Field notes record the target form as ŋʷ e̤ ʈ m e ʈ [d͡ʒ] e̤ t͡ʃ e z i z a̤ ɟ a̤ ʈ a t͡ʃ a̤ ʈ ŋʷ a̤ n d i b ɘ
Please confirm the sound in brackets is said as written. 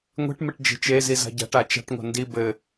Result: yes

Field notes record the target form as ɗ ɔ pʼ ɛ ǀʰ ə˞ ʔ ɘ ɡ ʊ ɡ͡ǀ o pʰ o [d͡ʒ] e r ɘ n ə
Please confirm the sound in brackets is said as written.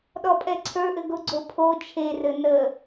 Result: no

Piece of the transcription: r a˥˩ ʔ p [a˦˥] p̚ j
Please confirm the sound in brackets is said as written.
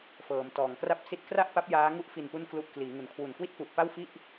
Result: yes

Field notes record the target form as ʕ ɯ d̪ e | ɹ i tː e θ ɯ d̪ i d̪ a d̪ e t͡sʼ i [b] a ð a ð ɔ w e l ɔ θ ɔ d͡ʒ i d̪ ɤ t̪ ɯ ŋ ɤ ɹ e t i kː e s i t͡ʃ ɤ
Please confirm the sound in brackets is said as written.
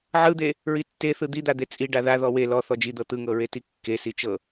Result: no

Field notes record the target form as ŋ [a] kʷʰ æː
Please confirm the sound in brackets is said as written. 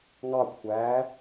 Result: no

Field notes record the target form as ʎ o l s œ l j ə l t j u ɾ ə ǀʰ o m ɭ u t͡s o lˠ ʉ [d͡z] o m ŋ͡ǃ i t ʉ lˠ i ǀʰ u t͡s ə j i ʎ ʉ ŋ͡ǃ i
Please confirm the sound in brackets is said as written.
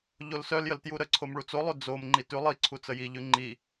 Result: yes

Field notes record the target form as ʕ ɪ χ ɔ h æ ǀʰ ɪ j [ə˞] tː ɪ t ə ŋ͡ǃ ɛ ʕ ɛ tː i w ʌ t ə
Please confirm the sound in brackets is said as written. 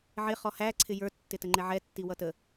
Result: yes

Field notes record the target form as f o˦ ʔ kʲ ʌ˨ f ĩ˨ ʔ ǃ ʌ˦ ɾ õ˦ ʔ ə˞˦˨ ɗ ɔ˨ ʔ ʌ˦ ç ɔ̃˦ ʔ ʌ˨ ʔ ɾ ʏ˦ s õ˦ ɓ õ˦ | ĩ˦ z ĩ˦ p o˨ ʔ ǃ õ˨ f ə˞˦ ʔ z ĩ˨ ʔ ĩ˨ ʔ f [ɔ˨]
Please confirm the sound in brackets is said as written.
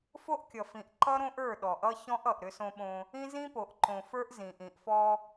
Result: no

